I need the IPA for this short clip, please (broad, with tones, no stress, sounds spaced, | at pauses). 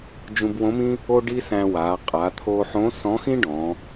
d͡ʒ ũ˧ b w õ˧˥ m ĩ˥ | o˥ ɖ i˥ s æ̃˧ w a˩˧ qʼ a˩˧ t̪ʰ oː˧ ħ õ˧˥ s ɔ̃˧˥ x ĩ˥ ɖ ɔ̃˩˧